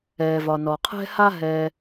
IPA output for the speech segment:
ɛː˩vɒ˩ nɔ˩qʰɛ̤˥ha˥ ɦɛː˥

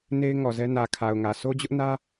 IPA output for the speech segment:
ne˦ɪ̯ŋɔ˨zɛ˦ nä˨kʰa˨ʊ̯ŋä˨ so˦d͡ʑʊ˦ʔnä˦

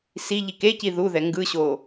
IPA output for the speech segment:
siʎik eci ðuðɛ ŋɡɯɕo

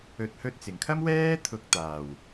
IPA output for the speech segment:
ɵ˨t̚hɵ˧t̚t͡sɪ˨˩ŋkʰɐ˥m wɛː˥ t̪ʰʊ˨k̚ t̪aː˨˩w

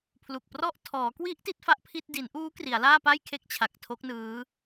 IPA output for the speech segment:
pʰlu˨˩k̚prɔ˥˩ʔ tʰɔː˩˦kwi˦˥ʔ ti˦˥t̚fa˥˩ʔpʰi˥˩t̚ di˩˦nʔuː˦˥ kri˩˦a̯laː˥˩pa˥˩j kʰe˦˥k̚t͡ɕʰa˨˩k̚ tʰo˦˥k̚nɯː˦˥

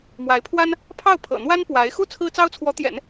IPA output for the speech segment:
mwa˧˥ɪ̯pʰwa˥n | pʰɑ˥˩ʊ̯pʰɤ̰˨˩n̪wa˥n pwa˧˥ɪ̯ xu˥˩ t͡sʰɹ̩˥t͡sɑ˥ʊ̯t͡sʰwɔ˧˥t̪jɛ̰˨˩˦n

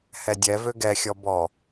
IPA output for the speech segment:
hɛdʲɛvø ɡɛxʲɔ bɔ

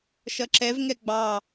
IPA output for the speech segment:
ʃʌǁɛv ŋɛɡ͡bɑ

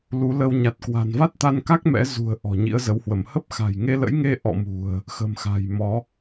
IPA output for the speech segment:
lu˨˦ lə˧wɲa˨˩t̚ kwa̤˨˩nva˦˥t̚t̪a˧nka˦˥k̚ mɛ̰˧˥ zṳ˨˩ə̯ ʔɔ̤˨˩ɲḭ˧˥ə̯zə˨˦whwə˧˩m hə˦˥p̚xa̤˨˩j ŋe˧lə̰˧˥jŋe˧ ʔɔ̰˧˨mṳ˨˩ə̯ | xə̤˨˩mxa̤˨˩j mɔ˨˦

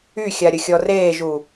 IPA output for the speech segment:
yxʲa ɾʲəxʲɔreːʒu

